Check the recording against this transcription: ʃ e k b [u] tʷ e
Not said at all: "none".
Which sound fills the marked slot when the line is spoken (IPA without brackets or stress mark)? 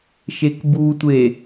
u